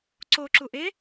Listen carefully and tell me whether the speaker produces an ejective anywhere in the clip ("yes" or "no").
no